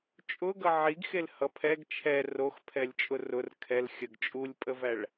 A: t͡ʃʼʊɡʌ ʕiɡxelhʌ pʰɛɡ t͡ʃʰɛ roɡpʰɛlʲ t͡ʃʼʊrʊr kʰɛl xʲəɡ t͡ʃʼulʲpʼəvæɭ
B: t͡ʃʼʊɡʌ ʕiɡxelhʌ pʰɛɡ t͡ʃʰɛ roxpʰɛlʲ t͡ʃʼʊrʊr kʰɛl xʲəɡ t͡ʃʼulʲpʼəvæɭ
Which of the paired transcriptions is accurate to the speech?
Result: B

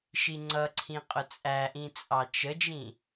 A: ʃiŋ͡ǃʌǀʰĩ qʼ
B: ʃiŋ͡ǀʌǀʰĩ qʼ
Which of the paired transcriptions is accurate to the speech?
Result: B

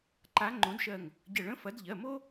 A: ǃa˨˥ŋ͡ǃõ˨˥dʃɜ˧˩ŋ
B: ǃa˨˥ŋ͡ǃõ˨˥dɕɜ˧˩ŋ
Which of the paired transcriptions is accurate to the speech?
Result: A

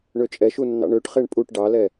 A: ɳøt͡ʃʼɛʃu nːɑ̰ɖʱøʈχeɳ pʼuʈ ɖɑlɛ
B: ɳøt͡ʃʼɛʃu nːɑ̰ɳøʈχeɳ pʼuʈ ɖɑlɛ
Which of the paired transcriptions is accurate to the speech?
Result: B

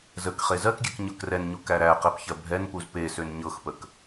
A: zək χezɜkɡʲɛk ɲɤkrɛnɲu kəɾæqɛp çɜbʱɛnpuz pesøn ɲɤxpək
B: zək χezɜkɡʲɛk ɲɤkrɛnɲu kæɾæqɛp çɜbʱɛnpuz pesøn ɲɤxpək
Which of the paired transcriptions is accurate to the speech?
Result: B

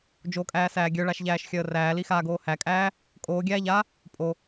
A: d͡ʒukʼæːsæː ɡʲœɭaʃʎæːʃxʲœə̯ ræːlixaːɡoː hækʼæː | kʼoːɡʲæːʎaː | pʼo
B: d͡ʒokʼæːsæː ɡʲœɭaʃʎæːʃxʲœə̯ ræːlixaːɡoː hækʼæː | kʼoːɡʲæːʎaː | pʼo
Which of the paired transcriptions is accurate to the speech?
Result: B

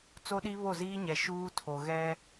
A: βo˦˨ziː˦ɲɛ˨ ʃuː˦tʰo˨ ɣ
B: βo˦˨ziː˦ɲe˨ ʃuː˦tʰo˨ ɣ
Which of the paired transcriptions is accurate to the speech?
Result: A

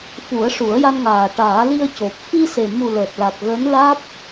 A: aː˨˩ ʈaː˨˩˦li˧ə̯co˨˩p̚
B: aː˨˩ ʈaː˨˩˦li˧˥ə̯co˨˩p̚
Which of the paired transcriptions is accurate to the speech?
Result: A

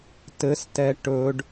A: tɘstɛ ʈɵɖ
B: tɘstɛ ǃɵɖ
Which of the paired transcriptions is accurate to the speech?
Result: A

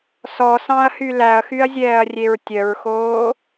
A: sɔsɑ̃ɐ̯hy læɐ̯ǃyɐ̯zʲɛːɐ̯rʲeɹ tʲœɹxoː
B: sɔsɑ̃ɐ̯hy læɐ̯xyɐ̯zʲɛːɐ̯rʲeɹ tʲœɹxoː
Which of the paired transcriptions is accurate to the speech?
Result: B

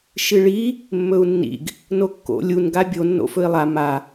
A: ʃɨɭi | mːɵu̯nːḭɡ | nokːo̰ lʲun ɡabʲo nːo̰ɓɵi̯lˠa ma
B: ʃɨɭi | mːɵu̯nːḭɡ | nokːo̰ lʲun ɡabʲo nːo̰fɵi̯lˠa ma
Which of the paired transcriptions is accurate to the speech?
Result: B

